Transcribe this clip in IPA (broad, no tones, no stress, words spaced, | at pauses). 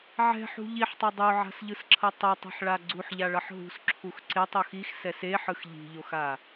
ʕɛ̤ħṳ ʎiħtˤʌ dˤoʕa̤sʎɯsǁʰʌ tˤʌtˤi̤ħɭa ɡ͡ǀuħʎaɭʌħ ɦṳsǁʰux ǀetˤox ixsɛs eħɯx ʎi̤ʎoxa